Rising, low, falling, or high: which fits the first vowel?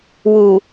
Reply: low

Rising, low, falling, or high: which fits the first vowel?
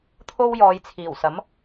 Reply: high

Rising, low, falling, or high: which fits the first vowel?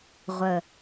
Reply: low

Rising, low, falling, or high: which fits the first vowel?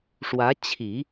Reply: rising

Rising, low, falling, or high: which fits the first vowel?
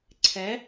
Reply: rising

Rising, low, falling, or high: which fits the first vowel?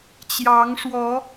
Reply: rising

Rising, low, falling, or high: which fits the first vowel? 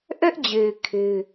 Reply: high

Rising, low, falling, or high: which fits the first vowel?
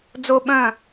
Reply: high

